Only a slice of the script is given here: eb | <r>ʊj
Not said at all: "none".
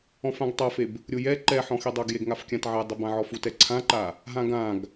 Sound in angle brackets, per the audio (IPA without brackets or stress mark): ɾʲ